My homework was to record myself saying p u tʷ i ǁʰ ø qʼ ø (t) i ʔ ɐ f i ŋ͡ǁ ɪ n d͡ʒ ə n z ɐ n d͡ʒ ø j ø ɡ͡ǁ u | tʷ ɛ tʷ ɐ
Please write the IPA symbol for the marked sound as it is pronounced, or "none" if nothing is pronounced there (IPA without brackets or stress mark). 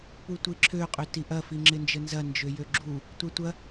t